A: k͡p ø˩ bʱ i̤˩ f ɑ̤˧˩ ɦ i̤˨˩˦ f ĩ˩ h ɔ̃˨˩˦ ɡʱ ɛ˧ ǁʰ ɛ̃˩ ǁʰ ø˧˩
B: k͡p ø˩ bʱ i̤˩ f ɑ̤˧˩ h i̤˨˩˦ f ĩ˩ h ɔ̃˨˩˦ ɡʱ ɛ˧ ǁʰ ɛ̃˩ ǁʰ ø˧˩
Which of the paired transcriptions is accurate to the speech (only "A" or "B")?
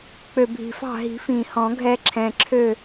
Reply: A